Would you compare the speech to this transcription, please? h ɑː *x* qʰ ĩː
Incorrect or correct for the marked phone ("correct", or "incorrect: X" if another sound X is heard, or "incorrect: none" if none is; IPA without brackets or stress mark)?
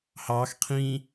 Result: correct